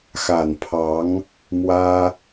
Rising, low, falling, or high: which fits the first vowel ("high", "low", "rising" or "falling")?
low